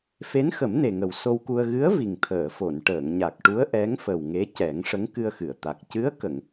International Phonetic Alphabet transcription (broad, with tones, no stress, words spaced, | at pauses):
fe˧˥nxə˨˩˦mne˨˩ŋə˨˩w so˧wku˧ə̯ ɣɨ˧˥ə̯ vi˨˩ŋt̪ʰəː˨˩˨fo˨˩˨n ʈəː˨˩˨ŋɲa˨˩k̚ʈu˧˥ə̯ ʔɛ˧˥ŋfə˨˩w ŋe˧˥cɛ˨˩˦ŋ ʂə˧˥ŋkɨ˧ə̯xɨ˨˩˨ə̯t̪a˨˩k̚ cɨ˧˥ə̯kə˨˩˨ŋ